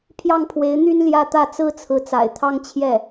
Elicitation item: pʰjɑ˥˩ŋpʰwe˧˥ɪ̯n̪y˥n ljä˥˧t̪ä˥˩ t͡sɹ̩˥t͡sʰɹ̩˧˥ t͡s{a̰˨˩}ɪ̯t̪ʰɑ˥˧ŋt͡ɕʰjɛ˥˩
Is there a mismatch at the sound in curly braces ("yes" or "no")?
no